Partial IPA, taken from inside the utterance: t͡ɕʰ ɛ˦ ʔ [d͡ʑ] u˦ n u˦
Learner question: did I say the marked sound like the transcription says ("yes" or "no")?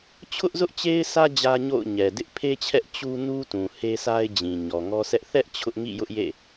no